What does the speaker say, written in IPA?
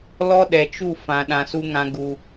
l ɔ˦ ɗ ɛ˨ t͡ʃ u˦˨ f ã˨ ɗ ã˨ s u˧ ŋ ã˧ ɡ u˧

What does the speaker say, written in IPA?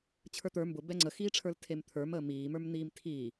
t͡ɕʰ ə˞ t̪ ə˞ m b ʊ b ɛ ŋ͡ǀ ə x iː ʈ͡ʂʰ ə˞ l tʰ e m t̪ʰ ə˞ m əː m iː m ə˞ m n̪ iː m tʰ iː

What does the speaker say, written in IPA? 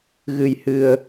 ɣ ɨ˧ j h ɨ˧ ə̯

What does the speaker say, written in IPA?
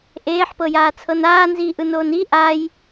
ʔ eː ħ p ɤ j aː t͡sʰ ɤ n aː n z iː ʔ ɯ n oː n i ʔ a j

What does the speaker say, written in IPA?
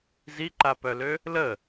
z i ǃ a p œ l ø | l ə

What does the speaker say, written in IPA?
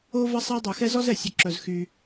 o˦ v ɐ˦ sˤ ɛ˦ dˤ œ˧ x ɛ˦ z ɔ˦ z ɛ˨ sʲ œ˧ ǁ œ˧ z x y˧

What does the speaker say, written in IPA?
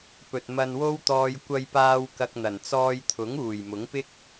p ɵ˨ t̚ m ɐ˧ n w o˥ w t̪ ɔː˧ j kʷ ɐ˧ j p aː˧ w k ɐ˧ k̚ n̪ ɐ˨˩ n t͡s ɔː˧ j t̪ʰ ʊ˨˥ ŋ uː˨˩ j m ʊ˨˥ ŋ p ɪ˥ k̚

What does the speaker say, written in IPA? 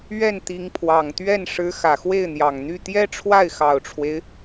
ɥ ɛ˥˩ n t̪ i˧˥ ŋ pʰ w ɑ˨˩ ŋ t̪ ɥ ɛ˥˩ n ʂ ɻ̩˧˥ x ä˨˩ x w e˥˩ ɪ̯ n̪ j ɑ˨˩ ŋ n̪ y˥˩ t̪ j ɛ˥ ʈ͡ʂʰ w a˥˩ ɪ̯ x ɑ˨˩ ʊ̯ ʈ͡ʂʰ w e˦ ɪ̯

